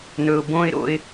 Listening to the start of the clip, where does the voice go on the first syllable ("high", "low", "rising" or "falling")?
low